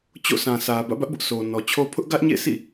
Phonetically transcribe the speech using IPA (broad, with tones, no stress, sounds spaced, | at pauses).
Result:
t͡ɕ o̰˦˨ sʰ ã˨ sʰ ä˨ b ä̰˦˨ b ä˦ ʔ b ʊ˦ ʔ s o˨ n ɔ˨ t͡ɕʰ o˦ pʰ ʊ˦ ʔ ɡ ä˦ ʔ ɲ ḛ˦˨ sʰ ḭ˦˨